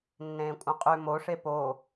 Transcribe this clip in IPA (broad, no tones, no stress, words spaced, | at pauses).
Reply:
nːẽːkʷʼœ̃qʼʉ moʂe po